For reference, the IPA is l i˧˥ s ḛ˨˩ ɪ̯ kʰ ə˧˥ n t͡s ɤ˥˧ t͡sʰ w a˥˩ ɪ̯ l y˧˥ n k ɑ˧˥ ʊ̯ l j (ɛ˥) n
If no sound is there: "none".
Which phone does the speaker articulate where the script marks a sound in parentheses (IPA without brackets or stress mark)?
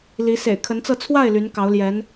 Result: ɛ˧˥